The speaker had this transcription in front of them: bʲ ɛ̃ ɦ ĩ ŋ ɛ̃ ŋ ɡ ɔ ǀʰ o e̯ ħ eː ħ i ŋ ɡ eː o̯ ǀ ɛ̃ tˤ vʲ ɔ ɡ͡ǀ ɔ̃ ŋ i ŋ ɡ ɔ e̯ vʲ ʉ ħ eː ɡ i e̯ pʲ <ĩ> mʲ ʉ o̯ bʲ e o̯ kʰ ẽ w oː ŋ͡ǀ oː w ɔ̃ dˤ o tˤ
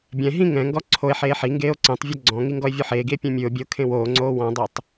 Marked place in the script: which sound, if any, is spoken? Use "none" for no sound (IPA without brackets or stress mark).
ẽ